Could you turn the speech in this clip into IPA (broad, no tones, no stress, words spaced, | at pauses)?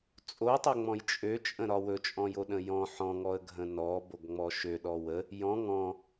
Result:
t͡sʼotˤøŋ͡mɔ̃j t͡ʃʼøt͡ʃʼə̃ɾɒ wɵt͡ʃʼɔ̃joɗə̃ jɔ̃ ħɔ̃ŋɔə̯ɡʱə̃ nɔboɡŋ͡mɔ ʃøɗɔ wə | jɔ̃ ŋɔ̃